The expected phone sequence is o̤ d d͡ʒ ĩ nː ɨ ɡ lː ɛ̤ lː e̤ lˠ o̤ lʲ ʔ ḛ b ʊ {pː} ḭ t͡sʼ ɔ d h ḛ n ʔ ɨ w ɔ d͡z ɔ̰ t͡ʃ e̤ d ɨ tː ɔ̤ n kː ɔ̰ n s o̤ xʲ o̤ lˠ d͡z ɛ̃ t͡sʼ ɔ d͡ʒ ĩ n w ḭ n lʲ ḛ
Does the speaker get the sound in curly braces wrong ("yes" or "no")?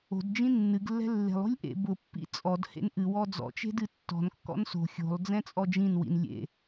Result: no